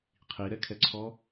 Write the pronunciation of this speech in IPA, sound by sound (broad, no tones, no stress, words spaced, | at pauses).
qʰiɾɛkʰɛǀʰɔ